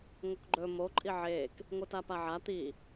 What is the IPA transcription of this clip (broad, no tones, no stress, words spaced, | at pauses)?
ŋokɡ͡ǃɵ mo ǃʼiʕeːk | ŋʷɨtapaʕa t̪i